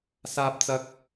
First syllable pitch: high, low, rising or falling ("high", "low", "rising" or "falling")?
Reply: high